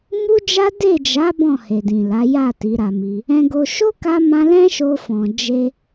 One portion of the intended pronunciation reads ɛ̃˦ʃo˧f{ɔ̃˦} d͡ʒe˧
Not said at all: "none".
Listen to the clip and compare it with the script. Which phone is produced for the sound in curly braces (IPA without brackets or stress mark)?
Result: ɔ̃˨